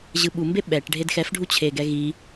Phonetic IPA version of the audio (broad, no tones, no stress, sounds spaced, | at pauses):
ʑ ɯ ɓ u m b e ɓ ɛ ʈ ɖʱ e d x ɛ f ɖʱ u t͡ɕʰ e ɡ ɛ ɣ i